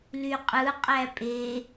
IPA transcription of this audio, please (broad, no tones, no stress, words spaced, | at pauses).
lyqʼɯ qʼæpʼe